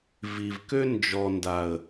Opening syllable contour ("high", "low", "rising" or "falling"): low